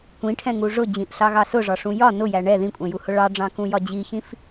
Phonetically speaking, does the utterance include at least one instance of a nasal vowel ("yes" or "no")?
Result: yes